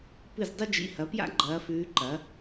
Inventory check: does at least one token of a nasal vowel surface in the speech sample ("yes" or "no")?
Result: no